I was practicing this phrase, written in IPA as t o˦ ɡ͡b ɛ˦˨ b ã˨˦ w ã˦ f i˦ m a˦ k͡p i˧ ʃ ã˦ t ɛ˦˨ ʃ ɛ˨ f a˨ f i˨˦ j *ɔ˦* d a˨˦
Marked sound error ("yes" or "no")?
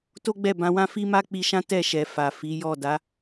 yes